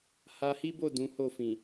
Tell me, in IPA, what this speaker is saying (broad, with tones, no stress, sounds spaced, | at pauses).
h a˧ h i˦ b o˦˨ d ũ˨˦ h o˦˨ f ĩ˨